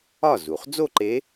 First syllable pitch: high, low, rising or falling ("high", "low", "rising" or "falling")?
falling